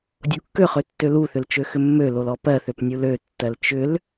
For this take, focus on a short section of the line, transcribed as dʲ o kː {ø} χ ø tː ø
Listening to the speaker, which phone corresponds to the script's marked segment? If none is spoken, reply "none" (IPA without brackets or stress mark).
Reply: ø